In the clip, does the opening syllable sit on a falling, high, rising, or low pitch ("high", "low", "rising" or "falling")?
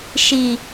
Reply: low